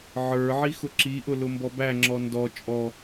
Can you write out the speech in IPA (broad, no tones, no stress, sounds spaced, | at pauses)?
ʕ ə˞ ʕ i x ʊ ǁ i ʔ ʊ l ʊ m b ɔ b æ ŋ͡ǁ ɔ n d ɔ t͡ʃʼ ɔ